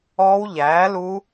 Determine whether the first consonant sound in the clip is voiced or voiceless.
voiced